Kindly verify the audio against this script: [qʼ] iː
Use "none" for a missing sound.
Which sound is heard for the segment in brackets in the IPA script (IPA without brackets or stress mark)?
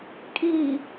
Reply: kʼ